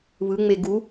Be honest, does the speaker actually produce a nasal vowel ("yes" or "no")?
no